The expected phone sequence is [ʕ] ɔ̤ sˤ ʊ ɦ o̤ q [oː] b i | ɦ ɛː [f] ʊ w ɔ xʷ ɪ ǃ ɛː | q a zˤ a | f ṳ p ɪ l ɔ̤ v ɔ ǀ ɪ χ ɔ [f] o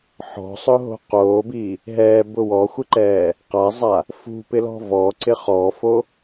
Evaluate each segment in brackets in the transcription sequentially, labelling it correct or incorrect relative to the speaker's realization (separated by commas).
incorrect, correct, incorrect, correct